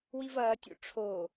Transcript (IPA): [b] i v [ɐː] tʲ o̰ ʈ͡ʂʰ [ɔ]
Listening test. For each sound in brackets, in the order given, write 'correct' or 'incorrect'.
incorrect: w, correct, incorrect: o

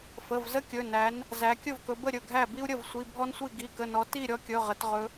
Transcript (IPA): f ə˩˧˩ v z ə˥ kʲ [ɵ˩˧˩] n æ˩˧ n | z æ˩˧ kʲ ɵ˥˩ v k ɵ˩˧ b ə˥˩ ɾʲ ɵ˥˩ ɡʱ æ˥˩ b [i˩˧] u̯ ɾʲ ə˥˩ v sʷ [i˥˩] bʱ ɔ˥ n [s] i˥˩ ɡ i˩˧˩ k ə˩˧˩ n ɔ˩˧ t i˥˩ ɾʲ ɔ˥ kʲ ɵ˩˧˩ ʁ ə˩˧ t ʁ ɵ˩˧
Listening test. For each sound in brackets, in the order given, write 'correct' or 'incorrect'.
correct, incorrect: i˥, incorrect: i˩˧˩, incorrect: sʷ

